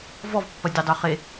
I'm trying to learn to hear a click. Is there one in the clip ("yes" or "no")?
no